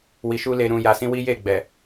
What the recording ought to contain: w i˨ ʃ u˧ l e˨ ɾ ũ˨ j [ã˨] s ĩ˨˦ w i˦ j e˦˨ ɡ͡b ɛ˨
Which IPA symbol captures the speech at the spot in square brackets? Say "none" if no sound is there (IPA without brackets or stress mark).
a˨